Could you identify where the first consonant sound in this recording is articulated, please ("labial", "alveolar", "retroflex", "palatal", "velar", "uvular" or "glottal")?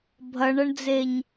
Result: labial